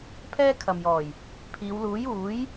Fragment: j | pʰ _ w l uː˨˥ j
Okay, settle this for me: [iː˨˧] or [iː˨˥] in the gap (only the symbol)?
iː˨˧